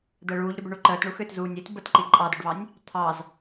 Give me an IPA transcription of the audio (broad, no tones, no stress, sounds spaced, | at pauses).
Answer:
d̪ əː ɭ uː ʎ ɾ ʏ b ʏ ɳ u ǃ əː t ɳ u x ʏː t z uː nʲ i t b ə t ǃ i ǃʼ ɑ d ʏ ɖ β ɑ nʲ | t̪ʰ ɑ z